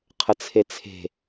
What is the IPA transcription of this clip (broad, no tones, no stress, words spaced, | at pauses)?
qʰət͡sʰet͡sʰe̤